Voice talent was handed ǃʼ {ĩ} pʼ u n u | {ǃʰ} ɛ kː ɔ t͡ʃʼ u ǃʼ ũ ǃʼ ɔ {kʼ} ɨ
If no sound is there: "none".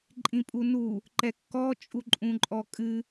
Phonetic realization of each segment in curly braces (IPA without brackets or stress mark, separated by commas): ĩ, ǃ, kʼ